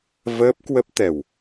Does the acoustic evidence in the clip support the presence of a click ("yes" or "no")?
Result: no